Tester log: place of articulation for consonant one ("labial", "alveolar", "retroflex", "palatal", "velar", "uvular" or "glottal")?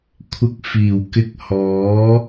velar